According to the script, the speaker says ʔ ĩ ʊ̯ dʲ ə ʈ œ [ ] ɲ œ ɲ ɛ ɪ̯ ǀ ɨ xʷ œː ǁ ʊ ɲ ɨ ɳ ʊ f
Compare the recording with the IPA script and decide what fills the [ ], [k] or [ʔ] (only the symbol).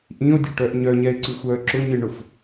ʔ